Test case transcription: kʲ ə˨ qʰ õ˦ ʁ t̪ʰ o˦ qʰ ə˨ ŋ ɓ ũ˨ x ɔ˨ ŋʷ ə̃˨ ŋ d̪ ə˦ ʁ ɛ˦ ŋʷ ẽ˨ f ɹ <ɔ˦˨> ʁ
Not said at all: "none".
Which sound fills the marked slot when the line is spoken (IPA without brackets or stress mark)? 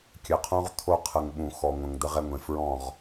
ɔ̃˦˨